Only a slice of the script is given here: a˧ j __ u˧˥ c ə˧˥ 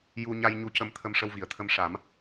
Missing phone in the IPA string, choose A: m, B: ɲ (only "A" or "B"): B